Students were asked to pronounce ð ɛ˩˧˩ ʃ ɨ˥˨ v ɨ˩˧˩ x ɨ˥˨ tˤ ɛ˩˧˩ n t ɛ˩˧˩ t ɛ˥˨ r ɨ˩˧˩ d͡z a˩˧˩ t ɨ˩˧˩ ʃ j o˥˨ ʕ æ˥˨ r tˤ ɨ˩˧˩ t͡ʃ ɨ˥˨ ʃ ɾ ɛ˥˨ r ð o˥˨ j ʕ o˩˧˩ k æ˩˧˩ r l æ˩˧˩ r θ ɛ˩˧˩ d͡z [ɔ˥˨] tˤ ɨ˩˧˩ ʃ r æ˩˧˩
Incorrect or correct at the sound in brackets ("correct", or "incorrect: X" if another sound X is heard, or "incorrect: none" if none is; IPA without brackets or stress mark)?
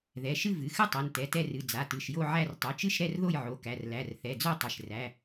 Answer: incorrect: o˥˨